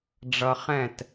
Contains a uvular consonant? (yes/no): yes